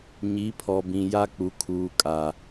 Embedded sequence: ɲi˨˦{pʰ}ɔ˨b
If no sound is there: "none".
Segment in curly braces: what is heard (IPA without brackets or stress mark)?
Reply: pʰ